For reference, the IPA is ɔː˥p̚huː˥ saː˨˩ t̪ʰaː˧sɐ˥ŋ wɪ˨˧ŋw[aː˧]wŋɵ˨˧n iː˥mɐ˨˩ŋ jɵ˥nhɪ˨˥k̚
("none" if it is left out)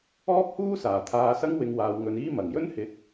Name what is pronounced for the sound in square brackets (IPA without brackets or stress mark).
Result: aː˨